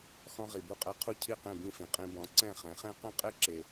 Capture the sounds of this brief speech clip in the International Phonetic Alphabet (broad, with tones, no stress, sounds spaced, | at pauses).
x ɔ̃˧ ʁ i˩ b u˥˩ qʼ ɛ˧ qʰ u˥˩ cʰ i˥˩ q ẽ˥˩ b ĩ˥˩ f ĩ˩ qʼ ĩ˧ b ɔ̃˩˥ ǀ ɛ̃˥˩ χ ɛ̃˩˥ χ ẽ˥ q ɛ̃˥ qʼ e˥ ǁ e˩